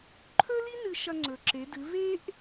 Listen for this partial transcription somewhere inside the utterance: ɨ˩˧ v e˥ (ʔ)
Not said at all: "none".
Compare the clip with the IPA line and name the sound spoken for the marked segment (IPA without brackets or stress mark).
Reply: ʔ